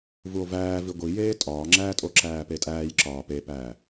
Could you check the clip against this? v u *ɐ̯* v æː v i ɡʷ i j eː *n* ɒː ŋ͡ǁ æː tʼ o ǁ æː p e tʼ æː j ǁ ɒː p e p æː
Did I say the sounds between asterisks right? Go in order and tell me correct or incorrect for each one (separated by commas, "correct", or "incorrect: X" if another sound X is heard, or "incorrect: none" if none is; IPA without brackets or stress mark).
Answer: incorrect: o̯, incorrect: tʼ